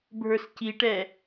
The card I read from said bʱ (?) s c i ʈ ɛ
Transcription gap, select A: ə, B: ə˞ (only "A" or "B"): B